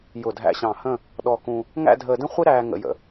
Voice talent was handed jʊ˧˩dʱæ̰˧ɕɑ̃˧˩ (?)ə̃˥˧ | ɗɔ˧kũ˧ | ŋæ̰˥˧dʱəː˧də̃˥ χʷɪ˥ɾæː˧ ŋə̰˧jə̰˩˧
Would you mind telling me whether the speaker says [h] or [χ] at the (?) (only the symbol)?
h